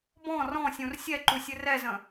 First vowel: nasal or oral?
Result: nasal